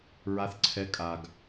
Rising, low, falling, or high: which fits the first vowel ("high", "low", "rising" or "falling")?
rising